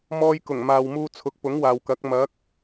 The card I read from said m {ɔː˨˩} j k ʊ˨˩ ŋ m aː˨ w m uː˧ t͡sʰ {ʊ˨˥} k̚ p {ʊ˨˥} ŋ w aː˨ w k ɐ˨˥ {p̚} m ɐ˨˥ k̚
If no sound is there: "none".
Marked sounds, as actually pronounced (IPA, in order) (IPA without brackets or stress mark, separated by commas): ɔː˧, ʊ˨˥, ʊ˨˥, k̚